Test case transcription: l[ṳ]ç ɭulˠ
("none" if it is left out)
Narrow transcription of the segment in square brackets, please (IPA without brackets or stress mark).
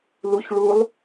u